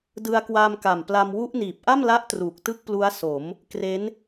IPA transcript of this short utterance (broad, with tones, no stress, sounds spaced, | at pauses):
d ɯ˧ a̯ k w a˧ m k a˨˩ m p l a˧ m w u˦˥ ʔ n iː˨˩ p̚ ʔ a˥˩ m l a˦˥ ʔ t r uː˨˩ k̚ t ɯ˥˩ k̚ p l u˦˥ a̯ s o˩˦ m | k r e˦˥ n